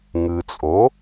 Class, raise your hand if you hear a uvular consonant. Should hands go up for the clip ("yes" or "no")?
no